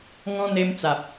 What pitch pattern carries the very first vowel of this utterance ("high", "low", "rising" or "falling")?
high